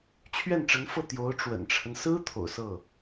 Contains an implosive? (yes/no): no